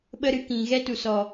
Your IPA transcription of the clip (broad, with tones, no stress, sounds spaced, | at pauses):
ɓ ə˦ ɾ ɨ˧ k ĩ˨ ɣ ɛ˦ t u˨ s ɔ˨